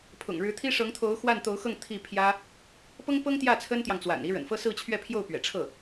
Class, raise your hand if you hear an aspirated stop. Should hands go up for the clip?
yes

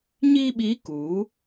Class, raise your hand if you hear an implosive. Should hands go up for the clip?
yes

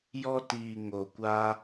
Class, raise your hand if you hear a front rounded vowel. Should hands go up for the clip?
no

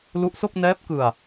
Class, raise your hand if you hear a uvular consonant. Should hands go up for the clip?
no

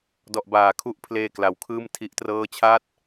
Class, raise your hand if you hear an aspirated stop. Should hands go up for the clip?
yes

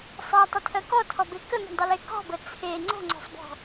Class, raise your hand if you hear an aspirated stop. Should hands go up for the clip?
yes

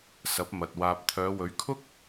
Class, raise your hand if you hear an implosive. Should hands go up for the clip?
no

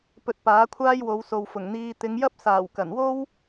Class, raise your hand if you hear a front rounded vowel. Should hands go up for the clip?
no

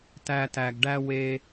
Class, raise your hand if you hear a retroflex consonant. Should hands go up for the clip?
yes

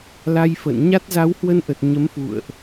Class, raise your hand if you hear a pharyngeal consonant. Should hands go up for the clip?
no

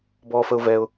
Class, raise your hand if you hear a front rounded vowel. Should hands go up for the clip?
no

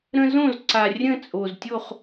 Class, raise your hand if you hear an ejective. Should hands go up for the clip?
yes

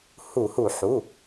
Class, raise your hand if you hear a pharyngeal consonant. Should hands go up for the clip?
yes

